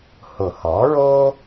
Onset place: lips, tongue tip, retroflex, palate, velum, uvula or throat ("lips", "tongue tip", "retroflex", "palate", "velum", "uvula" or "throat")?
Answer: throat